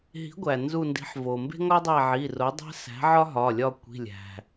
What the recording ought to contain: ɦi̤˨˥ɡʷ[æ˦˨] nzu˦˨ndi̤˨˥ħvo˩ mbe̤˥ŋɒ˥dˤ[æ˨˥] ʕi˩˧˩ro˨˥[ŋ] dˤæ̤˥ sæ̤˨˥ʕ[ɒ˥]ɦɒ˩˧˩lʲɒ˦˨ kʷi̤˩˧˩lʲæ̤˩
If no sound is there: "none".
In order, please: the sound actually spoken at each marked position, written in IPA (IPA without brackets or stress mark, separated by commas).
æ˩, æ˦˨, none, ɒ˥